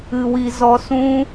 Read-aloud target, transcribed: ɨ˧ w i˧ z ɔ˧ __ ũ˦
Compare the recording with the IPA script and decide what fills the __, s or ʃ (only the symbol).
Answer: s